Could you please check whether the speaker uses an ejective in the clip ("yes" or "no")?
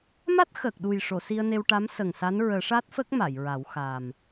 no